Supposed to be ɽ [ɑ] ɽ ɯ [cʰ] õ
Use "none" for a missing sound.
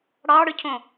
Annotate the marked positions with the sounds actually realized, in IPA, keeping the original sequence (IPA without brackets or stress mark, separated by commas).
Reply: ɑ, cʰ